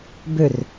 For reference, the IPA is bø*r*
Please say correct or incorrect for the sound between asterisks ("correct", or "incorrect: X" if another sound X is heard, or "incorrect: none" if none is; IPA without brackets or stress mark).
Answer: correct